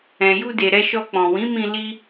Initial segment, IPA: ɛ̃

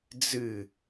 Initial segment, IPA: d͡z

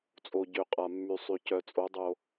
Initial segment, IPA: t͡sʼ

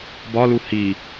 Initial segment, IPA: b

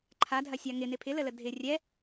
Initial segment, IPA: ǃʰ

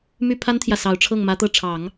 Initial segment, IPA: m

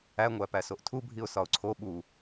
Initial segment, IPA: æ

